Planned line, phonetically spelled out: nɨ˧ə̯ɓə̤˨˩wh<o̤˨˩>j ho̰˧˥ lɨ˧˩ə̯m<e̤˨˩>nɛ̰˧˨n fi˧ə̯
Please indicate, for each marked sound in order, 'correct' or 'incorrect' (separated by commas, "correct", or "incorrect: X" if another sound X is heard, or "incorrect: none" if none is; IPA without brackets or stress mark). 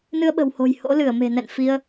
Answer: correct, correct